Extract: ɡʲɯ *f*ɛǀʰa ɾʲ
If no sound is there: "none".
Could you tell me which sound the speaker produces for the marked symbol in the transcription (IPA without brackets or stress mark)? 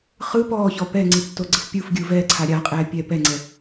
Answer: v